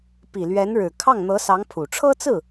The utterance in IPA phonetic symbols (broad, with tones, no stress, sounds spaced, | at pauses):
p i˨˩ l ɥ ɛ˧˥ n ɻ ɻ̩˨˩ kʰ ɑ˥˩ ŋ n̪ ɤ˧˥ s ɑ˧˥ ŋ pʰ u˨˩ ʈ͡ʂʰ ɤ˥ t͡s ɹ̩˥˩